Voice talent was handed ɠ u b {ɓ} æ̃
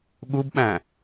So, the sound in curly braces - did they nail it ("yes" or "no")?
yes